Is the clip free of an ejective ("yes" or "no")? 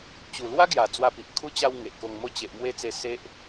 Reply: yes